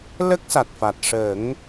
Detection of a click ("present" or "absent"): absent